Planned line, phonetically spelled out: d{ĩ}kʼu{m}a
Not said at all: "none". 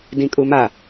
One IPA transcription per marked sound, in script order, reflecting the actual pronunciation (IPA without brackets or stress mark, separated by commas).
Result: ĩ, m